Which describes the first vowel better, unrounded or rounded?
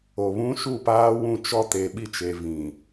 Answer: rounded